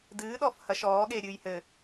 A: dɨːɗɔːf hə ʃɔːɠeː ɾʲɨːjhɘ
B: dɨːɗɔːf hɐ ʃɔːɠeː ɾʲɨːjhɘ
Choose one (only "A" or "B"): B